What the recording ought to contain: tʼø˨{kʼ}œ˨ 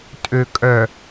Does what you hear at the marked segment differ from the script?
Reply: no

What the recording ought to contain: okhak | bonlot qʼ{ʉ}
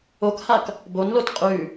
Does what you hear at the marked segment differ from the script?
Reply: no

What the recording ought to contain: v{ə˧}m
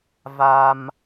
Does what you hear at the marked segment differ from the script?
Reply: yes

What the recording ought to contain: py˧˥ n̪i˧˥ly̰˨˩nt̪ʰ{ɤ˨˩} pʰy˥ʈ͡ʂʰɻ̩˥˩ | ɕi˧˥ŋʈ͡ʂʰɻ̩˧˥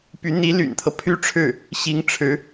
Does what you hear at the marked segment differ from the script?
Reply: yes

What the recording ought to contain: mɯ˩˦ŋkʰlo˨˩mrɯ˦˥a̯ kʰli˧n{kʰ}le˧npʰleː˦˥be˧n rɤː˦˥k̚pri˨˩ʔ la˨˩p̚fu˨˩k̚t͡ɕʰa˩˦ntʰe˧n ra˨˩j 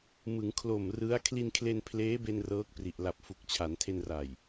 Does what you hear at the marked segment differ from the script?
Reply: no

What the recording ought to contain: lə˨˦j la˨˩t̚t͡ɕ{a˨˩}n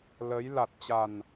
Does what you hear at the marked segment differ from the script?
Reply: no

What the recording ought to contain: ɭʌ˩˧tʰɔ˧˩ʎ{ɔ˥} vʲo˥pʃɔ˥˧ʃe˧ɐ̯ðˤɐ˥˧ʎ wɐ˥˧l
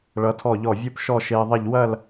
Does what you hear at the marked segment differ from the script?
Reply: yes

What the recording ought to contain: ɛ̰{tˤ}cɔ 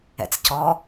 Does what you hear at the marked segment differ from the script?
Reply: yes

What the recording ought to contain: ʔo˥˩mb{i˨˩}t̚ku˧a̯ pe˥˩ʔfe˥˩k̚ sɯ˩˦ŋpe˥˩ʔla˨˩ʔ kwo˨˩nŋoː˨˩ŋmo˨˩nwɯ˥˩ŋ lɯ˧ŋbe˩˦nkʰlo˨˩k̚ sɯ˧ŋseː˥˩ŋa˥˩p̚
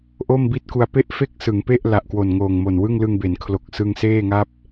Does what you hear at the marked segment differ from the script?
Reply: yes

